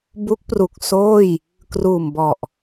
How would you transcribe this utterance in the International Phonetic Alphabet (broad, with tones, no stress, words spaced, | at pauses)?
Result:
bu˦˥k̚pru˨˩k̚ soː˥˩j | kruː˨˩m bɔ˨˩ʔ